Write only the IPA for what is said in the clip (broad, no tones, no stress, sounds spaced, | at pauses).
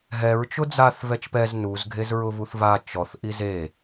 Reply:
ɦ ɛ ɹ t͡ʃ ʊ d͡z a θ v ɛ t͡ʃ p ɛ z n u z ɡʱ e z ɹ ʊ v u θ v a t͡ʃ ɔ θ ʔ i z e